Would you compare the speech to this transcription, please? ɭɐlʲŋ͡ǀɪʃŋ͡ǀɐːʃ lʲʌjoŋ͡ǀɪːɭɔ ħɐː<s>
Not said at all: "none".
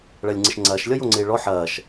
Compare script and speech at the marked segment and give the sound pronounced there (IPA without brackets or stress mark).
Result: ʃ